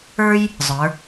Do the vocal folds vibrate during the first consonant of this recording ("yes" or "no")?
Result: yes